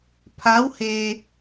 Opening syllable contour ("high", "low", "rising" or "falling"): rising